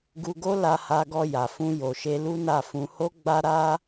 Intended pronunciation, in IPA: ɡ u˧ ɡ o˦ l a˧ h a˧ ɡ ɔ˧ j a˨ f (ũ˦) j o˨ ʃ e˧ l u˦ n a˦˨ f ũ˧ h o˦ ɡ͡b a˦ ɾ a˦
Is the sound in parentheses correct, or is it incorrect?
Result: incorrect: ũ˧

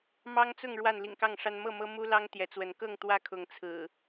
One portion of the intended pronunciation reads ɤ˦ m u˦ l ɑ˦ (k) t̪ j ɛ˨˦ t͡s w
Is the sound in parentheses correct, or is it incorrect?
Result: incorrect: ŋ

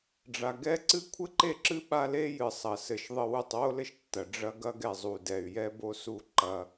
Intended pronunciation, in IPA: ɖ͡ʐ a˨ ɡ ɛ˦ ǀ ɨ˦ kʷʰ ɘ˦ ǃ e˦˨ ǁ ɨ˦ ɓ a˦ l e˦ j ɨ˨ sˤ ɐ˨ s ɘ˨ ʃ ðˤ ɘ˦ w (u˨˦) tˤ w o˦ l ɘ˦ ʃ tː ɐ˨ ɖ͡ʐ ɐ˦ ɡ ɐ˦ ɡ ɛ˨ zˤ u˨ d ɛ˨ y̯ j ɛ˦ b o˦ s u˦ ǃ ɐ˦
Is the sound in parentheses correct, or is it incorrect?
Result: incorrect: u˦˨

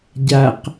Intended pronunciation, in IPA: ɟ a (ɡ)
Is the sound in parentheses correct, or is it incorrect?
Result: incorrect: q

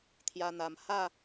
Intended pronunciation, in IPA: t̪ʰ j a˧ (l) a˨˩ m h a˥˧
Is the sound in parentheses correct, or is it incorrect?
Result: incorrect: n̪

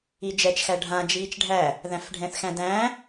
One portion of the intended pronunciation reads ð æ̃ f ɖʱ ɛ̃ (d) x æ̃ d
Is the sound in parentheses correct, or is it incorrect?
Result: incorrect: θ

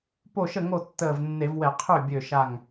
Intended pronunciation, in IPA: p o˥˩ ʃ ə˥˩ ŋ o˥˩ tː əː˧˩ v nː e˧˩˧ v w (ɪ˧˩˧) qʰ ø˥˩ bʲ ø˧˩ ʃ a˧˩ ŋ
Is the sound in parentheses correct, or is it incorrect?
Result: incorrect: ɛ˧˩˧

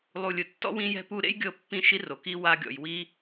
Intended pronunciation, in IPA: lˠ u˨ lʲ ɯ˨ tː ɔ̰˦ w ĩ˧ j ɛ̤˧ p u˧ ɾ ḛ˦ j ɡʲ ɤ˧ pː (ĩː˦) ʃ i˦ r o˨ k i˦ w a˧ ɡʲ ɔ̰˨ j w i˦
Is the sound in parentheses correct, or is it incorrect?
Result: incorrect: ĩ˦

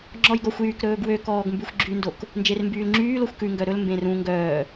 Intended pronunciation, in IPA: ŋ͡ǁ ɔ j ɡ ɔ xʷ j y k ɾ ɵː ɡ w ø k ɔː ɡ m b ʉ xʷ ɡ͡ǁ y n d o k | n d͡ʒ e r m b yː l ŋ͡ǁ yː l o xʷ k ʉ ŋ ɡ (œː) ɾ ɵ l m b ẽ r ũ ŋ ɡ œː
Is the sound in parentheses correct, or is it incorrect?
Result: incorrect: œ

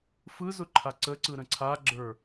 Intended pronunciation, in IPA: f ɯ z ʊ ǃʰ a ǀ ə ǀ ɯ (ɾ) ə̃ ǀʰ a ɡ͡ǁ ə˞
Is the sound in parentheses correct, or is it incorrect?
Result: correct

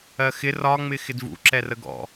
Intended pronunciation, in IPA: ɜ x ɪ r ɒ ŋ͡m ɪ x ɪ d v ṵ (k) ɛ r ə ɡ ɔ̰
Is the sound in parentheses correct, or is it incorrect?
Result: incorrect: ǁ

